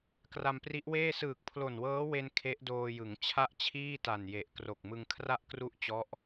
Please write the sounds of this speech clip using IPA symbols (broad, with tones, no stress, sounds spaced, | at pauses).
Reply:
k r a˧ m p r i˦˥ ʔ w eː˥˩ s ɯː˨˩ k̚ pʰ l o˨˩ n w ɤː˦˥ w e˧ n kʰ e˦˥ ʔ d oː˧ j ɯ˩˦ ŋ t͡ɕʰ a˥˩ ʔ t͡ɕʰ iː˥˩ t a˨˩ n j e˨˩ ʔ k r o˨˩ k̚ m ɯ˧ ŋ kʰ r a˥˩ ʔ k r u˥˩ ʔ t͡ɕ ɔ˦˥ ʔ